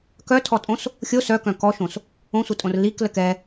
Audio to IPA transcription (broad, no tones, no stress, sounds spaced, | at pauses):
k œ tʰ ɔ tʼ õ s | xʲ o s œ k œ̃ k ɔ ʃ õ s | õ sʷ ə tʼ õ r l i k l ə k ɛ